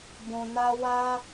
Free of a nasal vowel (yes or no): no